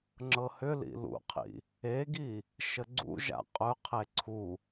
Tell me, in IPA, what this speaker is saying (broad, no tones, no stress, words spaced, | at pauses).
ŋ͡ǁɤhʏlḭ lṵqʰḭ | eɡi | ʃəɡ͡ǀṵʒa̰ qʼɵqʰe ǀʰu